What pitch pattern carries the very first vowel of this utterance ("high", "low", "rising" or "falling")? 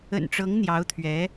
low